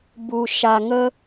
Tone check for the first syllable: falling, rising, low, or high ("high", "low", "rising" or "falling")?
low